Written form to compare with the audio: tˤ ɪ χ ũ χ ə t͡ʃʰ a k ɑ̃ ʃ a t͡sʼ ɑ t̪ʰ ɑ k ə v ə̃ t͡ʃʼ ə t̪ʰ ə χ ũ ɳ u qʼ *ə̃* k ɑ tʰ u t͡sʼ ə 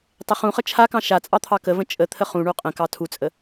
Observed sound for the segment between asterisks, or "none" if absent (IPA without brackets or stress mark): ə̃